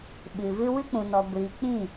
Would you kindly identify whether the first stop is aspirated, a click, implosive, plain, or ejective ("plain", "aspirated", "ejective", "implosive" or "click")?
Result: implosive